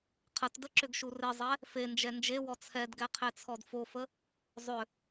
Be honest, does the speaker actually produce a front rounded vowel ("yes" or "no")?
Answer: yes